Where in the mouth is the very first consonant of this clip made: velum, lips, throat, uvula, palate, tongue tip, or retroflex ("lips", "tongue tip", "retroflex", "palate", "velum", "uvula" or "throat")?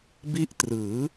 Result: lips